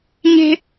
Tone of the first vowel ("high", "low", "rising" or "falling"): high